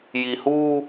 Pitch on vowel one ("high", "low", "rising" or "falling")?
low